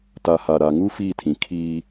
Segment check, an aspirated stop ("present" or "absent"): present